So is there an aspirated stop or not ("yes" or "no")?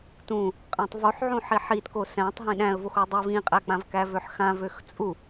no